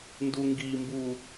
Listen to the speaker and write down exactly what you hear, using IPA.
n d u ŋ ɡ i m b u

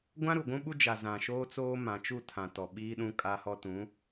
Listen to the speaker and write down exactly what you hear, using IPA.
ɡʷ ã˦ ɾ u˨ ɡʷ ũ˦ ɓ u˦ d͡ʒ a˨ z ã˨ ʃ oː˦ t͡s oː˦ m ã˨ t͡ʃ u˦˨ tʰ ã˨ t ɔ˨ ɓ i˦ ɗ ũ˦ kʼ a˦ h ɔ˦ t ũ˨˦

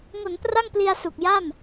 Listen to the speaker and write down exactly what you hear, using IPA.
ŋ o˩˦ n p r a˥˩ ŋ p l i˧ a̯ s u˨˩ k̚ j a˥˩ m

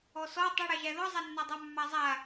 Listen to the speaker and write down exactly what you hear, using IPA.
ɔ s ɔ tˤ ə ɽ æ ʒ æ ð ɔ zˤ a nː a dˤ æ mː a zˤ a

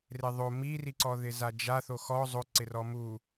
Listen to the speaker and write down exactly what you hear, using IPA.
r e ðˤ o m i r i ǀ ɔ ð ɪ z a d͡ʒ a θ o x ɔ zˤ o ǀ ɪ r ɔ m u

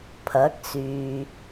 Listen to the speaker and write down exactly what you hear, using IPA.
pʰ ɐ˨˥ k̚ s yː˨

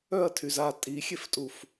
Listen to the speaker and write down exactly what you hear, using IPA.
œ ɐ̯ tʰ y z a tʼ i xʲ e f tʼ u f

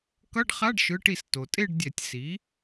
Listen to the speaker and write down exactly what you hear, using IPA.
k ʌ˧˥˧ ɖ χ a˧˥˧ ɖ ʃ ɯ˩˧˩ ʈ i˧˩˧ s t o˩ tʼ e˥˧ ɖ dʲ ɛ˧˩˧ tʲ s i˩˥

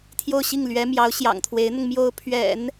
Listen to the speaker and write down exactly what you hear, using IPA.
t̪ʰ j o˥˧ ʊ̯ ɕ i˥˩ ŋ l ɥ ɛ˧˥ m j ɑ˧˥ ʊ̯ ɕ j ɑ̰˨˩ ŋ t̪ʰ w e˧˥ ɪ̯ n̪ ʊ˧ ŋ m j o˧˥ ʊ̯ pʰ ɥ ɛ̰˨˩˦ n

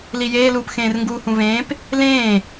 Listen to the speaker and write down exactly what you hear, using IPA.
l i j eː l uː p x ẽː r ŋ ɡ uː h ũ v ẽː p | l ẽː

